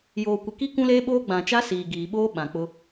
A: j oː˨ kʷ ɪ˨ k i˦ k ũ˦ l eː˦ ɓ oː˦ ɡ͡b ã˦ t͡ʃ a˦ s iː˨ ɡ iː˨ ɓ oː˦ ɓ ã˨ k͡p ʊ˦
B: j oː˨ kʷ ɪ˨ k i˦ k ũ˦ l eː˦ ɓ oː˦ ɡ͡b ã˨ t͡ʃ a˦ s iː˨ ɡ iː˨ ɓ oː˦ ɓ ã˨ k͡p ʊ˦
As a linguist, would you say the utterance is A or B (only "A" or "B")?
B